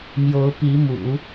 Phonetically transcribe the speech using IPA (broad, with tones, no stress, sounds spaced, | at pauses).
m j o˧˥ ʊ̯ p i˧˥ m ṵ˨˩˦